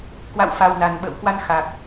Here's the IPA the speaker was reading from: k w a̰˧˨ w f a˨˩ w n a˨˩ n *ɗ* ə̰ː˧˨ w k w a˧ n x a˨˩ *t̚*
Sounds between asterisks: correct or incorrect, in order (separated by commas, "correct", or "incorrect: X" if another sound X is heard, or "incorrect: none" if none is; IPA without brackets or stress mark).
incorrect: ɓ, incorrect: k̚